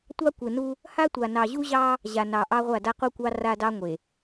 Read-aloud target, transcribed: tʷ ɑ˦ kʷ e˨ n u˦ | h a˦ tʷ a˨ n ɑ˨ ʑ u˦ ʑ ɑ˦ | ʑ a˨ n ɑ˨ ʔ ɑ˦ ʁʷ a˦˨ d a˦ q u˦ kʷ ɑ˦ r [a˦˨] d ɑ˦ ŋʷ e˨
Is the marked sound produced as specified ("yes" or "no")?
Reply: no